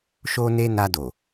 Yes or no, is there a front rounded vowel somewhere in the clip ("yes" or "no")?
no